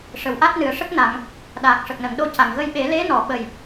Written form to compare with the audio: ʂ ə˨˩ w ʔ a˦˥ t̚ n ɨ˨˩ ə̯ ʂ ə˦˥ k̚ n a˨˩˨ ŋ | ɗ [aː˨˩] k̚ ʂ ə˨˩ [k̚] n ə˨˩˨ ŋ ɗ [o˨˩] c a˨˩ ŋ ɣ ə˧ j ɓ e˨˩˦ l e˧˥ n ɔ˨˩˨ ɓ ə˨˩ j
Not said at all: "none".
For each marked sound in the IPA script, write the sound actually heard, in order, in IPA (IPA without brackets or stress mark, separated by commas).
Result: aː˨˩, k̚, o˧